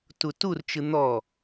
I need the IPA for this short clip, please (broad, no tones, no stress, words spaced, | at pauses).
tuturt͡ʃɯ n̪ɔ